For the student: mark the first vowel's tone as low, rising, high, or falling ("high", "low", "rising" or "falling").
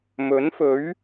rising